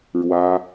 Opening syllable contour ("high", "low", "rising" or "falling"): high